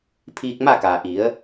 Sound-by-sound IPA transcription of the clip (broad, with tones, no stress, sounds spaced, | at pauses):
pʰ iː˧ k̚ m a˥˨ k aː˩ ʔ i˩˧ ə̯